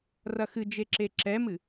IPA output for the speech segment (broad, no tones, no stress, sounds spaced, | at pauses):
r ɐ x ɨ d͡ʒ e ǁ e ǁ ɛ m ɨ